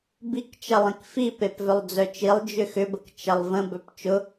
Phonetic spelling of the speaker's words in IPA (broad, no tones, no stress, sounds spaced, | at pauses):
b i k t͡ʃ ɐ lˠ ĩ k f i p e p v œ lˠ d͡z œ t͡ʃ i lˠ d͡ʒ ʏ x ʏ b ə k t͡ʃ ɐ lˠ v ə̃ b œ p t͡ʃ ʊ